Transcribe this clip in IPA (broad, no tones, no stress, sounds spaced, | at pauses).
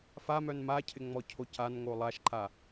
f a m œ n m a cʰ ɪ ŋ͡m ɔ cʰ o c a n ŋ o lˠ a ʃ ǃ a